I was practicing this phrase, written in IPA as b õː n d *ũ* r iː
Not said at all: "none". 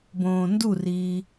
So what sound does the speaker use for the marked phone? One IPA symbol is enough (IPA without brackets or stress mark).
u